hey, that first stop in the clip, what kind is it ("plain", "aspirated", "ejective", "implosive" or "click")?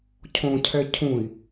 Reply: aspirated